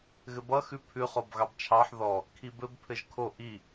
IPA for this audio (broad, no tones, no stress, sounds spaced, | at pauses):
ɣ ɘ b ʌ x ʉ pʰ ʉ χ o b ɣ ɑ b t͡ʃʰ ɑ ħ ð ɔ | kʰ i b ɘ b pʰ ɘ ʒ kʰ o ʔ i